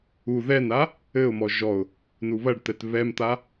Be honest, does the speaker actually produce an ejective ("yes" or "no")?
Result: no